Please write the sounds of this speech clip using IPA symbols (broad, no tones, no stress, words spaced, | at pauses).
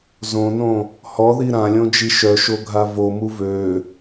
zõnõ | hɔði ɾãlʲõd͡ʒi ʃœʃoɡʱa vomu vø